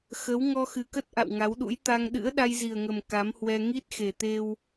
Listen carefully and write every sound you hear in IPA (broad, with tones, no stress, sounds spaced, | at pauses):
x ə˨˦ w ŋ ɔ˧ x ɨ˨˩ k ə˦˥ t̚ ʔ a̰˧˨ w ŋ a˨˦ w ɗ ṵ˧˥ j t̪ a˧ ŋ ɗ ɨ̰˧˥ ə̯ ɗ a˧ j z i˨˩ ə̯ ŋ ə˨˩ m k a˨˦ m h w ɛ˧ ŋ i˦˥ t̚ x e˨˩ t̪ e˧ w